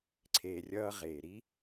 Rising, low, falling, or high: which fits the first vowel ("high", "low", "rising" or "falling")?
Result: low